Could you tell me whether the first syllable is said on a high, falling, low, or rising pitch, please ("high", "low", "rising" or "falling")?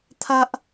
high